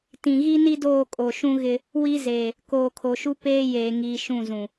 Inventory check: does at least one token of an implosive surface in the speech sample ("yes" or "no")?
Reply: no